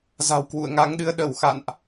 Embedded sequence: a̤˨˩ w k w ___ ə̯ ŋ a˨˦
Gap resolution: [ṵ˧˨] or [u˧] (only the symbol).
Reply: ṵ˧˨